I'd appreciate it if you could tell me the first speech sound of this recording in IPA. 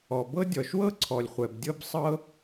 ɔ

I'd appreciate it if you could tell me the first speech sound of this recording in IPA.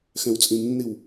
x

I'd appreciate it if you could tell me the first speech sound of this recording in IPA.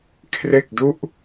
kʰ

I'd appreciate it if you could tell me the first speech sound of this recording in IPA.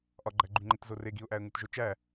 ʔ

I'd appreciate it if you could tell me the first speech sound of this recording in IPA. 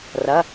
r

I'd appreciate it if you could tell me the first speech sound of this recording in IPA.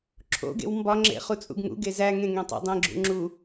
ǁʰ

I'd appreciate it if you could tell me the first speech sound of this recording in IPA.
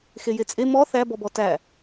x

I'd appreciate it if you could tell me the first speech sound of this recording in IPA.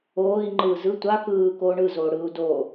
oː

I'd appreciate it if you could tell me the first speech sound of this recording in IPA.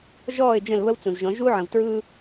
ʒ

